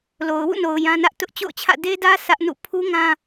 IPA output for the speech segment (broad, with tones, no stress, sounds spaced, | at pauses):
l o˨ ʊ̯ w ṵ˦˨ n o˨ ʊ̯ j ã˦ n ä˦ ʔ t ʊ˦ ʔ t͡ɕ o̰˦˨ ʊ̯ t͡ɕʰ ä̰˦˨ d e˦ d ä˦ sʰ ä˦ ʔ n ṵ˦˨ pʰ u˦ ŋ ã˦